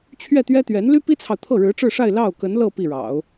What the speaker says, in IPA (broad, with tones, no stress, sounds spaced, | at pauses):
t͡ɕʰ ɥ ɛ˥˩ t̪ ɥ ɛ˥ t̪ ɥ ɛ˧˥ n l y˥ p i˥ t͡sʰ ɑ˨ ʊ̯ t̪ʰ ɤ˥˩ ɻ ɻ̩˧˥ ʈ͡ʂ ɻ̩˥˧ ʂ a˥˧ ɪ̯ l ɑ˥˩ ʊ̯ k ə˧˥ n l ɤ˥˧ p i˥˩ ɻ ɑ̰˨˩˦ ʊ̯